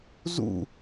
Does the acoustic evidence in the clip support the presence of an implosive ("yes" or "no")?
no